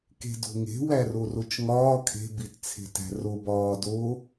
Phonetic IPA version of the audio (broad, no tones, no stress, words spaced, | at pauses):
ke̤do̤ŋe̤ wærorot͡ʃŋɒː kʰe̤ bitt͡sʰe̤tæ̤ro bɒːdo